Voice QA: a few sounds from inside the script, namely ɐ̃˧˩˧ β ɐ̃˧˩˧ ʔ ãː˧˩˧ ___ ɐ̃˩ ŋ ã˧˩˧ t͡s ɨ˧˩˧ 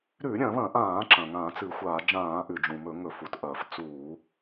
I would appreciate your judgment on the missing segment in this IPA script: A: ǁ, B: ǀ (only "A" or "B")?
A